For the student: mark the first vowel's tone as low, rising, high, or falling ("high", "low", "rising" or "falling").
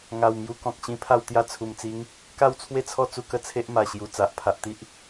low